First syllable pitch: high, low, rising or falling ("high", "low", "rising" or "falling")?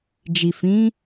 low